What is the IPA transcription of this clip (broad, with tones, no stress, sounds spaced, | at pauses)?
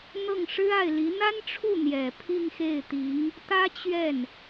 n̪ ɤ˥˩ ŋ ʂ ɻ̩˥ a˥˩ ɪ̯ l i˧˥ n̪ a˥ n ʈ͡ʂʰ u˥˩ n̪ j ɛ˨˩ pʰ i˥˧ ŋ x e˥˩ ɪ̯ t̪ i˧˥ ŋ | t̪ ä˥ t͡ɕ ɥ ɛ˥˩ n